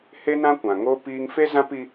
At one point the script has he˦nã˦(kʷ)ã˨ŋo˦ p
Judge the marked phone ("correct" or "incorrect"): correct